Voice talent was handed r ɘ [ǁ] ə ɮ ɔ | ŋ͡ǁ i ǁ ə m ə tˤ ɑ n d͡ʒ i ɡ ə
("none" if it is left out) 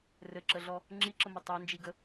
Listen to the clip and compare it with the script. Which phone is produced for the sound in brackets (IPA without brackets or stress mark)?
ǁ